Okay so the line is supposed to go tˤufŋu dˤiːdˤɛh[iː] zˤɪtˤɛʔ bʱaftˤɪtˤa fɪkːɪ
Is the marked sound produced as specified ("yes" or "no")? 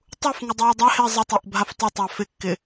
no